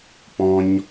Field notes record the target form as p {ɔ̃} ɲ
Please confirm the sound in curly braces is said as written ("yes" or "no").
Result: yes